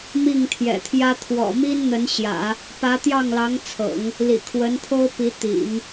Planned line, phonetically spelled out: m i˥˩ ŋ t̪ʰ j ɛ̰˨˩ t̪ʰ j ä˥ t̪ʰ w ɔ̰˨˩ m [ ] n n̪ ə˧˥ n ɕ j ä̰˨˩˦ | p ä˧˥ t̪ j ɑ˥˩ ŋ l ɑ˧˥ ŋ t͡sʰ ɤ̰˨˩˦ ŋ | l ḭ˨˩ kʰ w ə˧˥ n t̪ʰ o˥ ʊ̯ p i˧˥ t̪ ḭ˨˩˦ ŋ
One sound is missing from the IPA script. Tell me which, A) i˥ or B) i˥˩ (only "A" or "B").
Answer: A